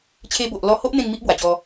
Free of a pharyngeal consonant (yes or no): yes